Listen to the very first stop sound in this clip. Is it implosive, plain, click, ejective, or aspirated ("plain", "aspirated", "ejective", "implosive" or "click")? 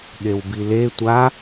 implosive